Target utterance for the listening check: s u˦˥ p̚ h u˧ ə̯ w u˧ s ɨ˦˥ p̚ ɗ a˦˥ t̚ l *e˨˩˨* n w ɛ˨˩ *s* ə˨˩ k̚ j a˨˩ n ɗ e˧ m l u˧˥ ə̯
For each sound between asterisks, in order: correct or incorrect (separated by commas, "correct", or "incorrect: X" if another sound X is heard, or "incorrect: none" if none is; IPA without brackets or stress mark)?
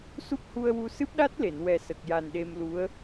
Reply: correct, correct